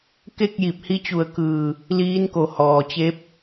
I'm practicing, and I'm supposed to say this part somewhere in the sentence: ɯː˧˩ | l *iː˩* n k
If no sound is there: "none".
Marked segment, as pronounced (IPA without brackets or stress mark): iː˧˥